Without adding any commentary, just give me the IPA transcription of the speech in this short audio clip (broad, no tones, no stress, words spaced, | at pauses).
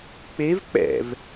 k͡pev k͡pɛ̰v